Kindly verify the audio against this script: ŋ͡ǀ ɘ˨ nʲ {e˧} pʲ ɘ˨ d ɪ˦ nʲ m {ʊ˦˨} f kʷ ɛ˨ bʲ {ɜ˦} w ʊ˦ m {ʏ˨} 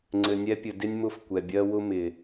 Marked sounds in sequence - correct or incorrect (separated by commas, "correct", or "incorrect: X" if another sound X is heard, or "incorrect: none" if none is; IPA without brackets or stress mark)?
incorrect: ɛ˧, correct, correct, incorrect: ɪ˨